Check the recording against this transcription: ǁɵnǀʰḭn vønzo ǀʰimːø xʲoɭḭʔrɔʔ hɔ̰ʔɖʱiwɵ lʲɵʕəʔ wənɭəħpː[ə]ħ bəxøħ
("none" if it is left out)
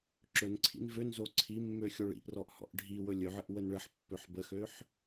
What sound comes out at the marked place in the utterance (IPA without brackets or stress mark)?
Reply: ø